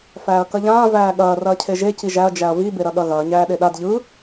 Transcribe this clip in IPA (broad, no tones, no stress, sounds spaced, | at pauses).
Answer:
f æː ɐ̯ k ɐ ʎ ãː v æː ɠ ɐː r ɐː cʰ e ʒ e c i ʒ æ ɐ̯ d͡ʒ æ ɐ̯ v i b e ɾ ɐ ɠ ɐ ɣ ɐː ɲ æː ɗ e ɗ a d ʎ ɯ